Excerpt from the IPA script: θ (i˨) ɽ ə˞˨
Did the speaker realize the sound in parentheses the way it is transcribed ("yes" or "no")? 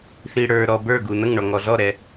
yes